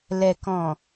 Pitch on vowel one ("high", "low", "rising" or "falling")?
low